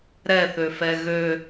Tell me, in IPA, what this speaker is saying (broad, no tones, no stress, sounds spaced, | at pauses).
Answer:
ɾ ɛ θ ø f ɛ ɣ ø